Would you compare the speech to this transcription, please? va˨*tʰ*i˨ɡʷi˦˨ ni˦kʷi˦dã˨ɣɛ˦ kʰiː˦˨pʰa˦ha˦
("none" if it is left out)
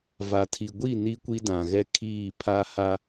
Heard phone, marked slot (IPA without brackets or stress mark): tʰ